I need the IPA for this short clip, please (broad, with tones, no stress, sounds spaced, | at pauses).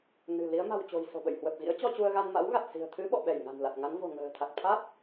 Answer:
n ɨ̤˨˩ l i˨˦ ə̯ m a̤˨˩ w t͡ɕ o̤˨˩ j s o̤˨˩ ɓ ə̰˧˨ j h w ə˨˩ p̚ ɣ ḭ˧˥ ə̯ t͡ɕ ɔ˧ t͡ɕ u˧ ə̯ ɣ a˧ n m a̰˧˥ w ɣ a˨˩ t̚ s i̤˨˩ ə̯ t̪ʰ ɨ˨˦ ɓ ɔ̰˧˨ ɓ ɛ˧˩ j ŋ a̤˨˩ n l a˨˩ t̚ ŋ a˨˦ n v o̤˨˩ ŋ ə̤ː˨˩ t̪ʰ a˨˩ k̚ t̪ʰ a˦˥ t̚